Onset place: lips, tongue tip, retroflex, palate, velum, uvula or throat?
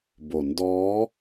lips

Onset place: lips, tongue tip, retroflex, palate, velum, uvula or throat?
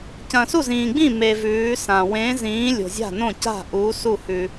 palate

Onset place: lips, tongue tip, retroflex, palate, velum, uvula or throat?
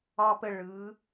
lips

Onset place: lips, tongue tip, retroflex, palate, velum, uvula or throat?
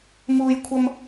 lips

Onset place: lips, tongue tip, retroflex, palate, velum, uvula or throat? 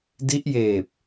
tongue tip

